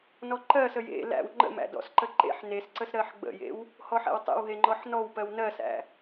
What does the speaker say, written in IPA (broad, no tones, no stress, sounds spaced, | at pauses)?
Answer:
n ɔ ǃ ɜ s ə j ḛ l æ̰ w ŋ͡ǃ ə̰ m æ̰ d ɔ̰ s ǃ ə ǃ ḛ ħ n e s ǀ ə s ɾ ɜ ħ ɡ͡b ə̰ j ḛ w | h ɔ ħ æ̰ w tˤ ḛ w ɦ e ŋ͡ǃ ɔ ħ n ɔ w p ɜ w n ɜ s æ̰